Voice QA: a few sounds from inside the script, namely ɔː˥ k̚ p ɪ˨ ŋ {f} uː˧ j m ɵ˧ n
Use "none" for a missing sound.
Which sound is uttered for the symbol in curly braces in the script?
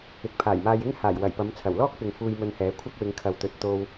f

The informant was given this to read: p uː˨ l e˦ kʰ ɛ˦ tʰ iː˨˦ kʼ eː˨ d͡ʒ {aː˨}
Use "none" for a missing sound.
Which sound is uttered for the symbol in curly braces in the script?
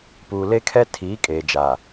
aː˨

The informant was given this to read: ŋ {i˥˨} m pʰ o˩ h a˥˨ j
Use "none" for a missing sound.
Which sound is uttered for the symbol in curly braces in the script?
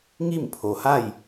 i˥˨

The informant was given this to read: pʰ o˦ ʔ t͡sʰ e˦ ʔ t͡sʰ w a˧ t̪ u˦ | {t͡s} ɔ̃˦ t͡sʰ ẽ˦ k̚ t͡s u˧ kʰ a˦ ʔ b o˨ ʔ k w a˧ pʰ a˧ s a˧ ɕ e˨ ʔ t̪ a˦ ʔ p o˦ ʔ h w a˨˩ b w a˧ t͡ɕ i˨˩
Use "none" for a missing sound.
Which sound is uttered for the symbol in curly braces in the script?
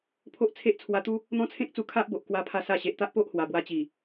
n̪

